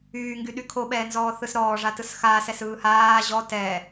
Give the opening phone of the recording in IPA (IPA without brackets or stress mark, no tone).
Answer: yː